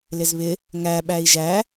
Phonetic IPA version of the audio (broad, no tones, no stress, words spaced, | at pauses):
lɪzβɪ | ŋæ ɓæi̯ʒæ